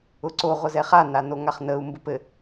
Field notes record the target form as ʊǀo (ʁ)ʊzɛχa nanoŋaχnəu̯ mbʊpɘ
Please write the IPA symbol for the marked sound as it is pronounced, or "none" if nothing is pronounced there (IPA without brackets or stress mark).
ʁ